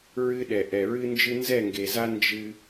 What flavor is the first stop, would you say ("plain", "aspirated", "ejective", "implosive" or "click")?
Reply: implosive